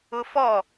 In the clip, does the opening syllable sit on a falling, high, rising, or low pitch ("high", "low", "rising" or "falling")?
high